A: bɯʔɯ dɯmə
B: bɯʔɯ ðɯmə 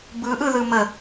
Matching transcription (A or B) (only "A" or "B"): B